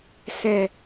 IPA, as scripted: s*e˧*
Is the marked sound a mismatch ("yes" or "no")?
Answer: yes